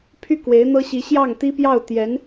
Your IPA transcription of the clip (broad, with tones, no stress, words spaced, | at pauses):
pʰy˥˩ kwe˧˥ɪ̯n̪ɤ˥ɕi˧˥ ɕjɑ˥˩ŋ t̪i˥pjɑ˥˩ʊ̯ t̪jɛ˧˥n